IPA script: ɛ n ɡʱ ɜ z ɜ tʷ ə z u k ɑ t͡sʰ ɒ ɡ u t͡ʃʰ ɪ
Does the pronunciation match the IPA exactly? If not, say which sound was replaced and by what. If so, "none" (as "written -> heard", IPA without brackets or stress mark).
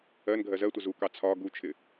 ɛ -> ɜ